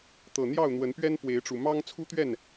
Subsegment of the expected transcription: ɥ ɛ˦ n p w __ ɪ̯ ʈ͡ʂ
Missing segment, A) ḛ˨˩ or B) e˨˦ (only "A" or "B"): B